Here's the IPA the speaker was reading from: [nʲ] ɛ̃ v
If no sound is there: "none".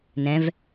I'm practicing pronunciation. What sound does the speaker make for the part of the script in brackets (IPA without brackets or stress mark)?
n